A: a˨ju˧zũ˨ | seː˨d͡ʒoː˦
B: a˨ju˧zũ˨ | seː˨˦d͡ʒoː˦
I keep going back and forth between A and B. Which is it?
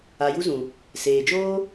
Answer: A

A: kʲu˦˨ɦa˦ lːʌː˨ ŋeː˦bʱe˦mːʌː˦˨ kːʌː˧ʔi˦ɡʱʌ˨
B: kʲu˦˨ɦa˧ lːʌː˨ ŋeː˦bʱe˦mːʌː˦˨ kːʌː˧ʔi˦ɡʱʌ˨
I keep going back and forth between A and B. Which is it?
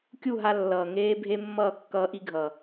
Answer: B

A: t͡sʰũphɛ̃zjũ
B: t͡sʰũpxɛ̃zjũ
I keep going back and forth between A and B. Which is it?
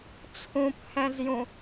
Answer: A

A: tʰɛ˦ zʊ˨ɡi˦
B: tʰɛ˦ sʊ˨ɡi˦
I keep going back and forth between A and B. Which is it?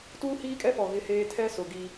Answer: B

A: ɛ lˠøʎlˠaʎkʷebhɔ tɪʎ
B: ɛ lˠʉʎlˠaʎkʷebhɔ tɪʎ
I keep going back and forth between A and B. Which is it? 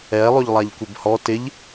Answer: A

